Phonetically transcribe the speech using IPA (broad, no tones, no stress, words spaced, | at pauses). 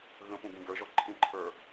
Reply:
ɣə̃pũɡĩ ɡə˞ʒɔ ǃʰĩǃʰə˞